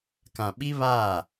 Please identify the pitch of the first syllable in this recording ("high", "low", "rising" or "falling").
low